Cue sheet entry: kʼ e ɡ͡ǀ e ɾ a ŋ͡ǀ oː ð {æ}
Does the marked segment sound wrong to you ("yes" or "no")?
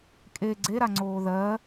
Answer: yes